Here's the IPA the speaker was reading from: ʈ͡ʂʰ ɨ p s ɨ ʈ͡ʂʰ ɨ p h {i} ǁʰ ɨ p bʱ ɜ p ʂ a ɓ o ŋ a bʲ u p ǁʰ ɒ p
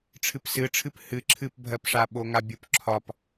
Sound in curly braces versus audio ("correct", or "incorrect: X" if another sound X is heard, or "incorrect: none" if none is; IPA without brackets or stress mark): incorrect: ɨ